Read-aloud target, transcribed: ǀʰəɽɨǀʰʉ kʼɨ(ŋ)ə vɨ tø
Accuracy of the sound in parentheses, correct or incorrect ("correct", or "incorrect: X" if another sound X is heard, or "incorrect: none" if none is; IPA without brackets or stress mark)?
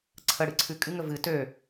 correct